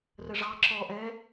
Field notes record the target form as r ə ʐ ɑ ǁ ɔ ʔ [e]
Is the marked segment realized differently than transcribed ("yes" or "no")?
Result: yes